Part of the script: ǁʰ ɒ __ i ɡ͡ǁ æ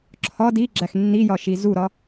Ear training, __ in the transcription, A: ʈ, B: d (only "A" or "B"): B